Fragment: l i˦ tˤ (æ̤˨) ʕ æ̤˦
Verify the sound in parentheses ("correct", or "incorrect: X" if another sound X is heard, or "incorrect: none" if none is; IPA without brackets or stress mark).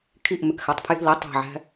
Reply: correct